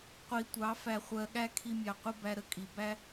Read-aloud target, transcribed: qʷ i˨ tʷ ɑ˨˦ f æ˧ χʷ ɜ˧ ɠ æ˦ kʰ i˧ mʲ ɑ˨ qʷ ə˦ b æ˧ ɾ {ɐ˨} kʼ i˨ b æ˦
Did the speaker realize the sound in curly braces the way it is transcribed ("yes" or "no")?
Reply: no